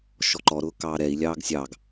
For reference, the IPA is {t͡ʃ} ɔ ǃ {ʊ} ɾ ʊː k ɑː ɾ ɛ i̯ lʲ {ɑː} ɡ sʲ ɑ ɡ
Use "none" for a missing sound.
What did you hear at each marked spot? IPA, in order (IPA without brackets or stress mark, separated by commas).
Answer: ʃ, ɔ, ɑː